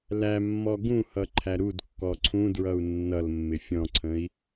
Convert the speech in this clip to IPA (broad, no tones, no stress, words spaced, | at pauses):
læmːɔ ɡũhʌ ǃʰæɾudkːɔ ǀʰũdɹʌu̯ nːʌlmːɪ fʲɔ̃ǀʰə̃i̯